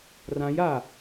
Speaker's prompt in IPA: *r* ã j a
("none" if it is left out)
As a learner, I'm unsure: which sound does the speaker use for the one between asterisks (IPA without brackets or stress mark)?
r